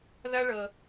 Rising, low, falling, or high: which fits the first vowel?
high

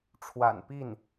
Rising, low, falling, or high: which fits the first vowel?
low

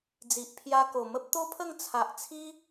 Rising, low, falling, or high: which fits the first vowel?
low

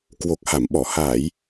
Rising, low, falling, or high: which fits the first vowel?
low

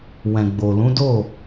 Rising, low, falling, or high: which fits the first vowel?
low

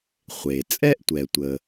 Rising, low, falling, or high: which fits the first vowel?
low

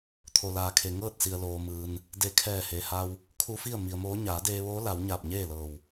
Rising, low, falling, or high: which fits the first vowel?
low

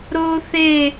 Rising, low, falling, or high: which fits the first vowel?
high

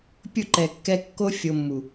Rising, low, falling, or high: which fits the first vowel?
falling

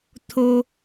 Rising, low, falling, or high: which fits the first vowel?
low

